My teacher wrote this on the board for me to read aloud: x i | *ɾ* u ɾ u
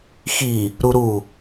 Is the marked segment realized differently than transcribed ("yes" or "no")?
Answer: no